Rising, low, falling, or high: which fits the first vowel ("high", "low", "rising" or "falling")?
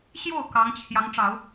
falling